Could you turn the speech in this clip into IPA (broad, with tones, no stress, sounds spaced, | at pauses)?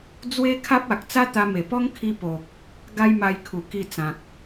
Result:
d͡z w e˦ kʰ a˦ p̚ a˨ k̚ t͡s a˦ t̪ a˧ m e˨˩ p ɔ˦ ŋ kʰ i˧ p o˨ k̚ | ɡ a˦ j m a˧ j kʰ u˨˩ k i˧ t͡s ã˨ k̚